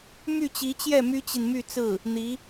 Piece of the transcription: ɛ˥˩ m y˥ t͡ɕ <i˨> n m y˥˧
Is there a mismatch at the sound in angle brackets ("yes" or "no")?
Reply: no